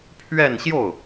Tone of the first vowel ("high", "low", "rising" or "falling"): falling